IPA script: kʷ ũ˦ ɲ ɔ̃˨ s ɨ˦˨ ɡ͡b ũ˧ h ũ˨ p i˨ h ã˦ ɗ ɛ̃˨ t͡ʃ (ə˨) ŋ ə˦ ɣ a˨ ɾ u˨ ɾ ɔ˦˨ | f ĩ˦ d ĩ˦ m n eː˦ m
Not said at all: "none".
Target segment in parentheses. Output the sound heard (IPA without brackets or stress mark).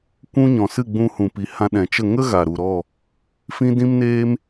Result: ə˦˨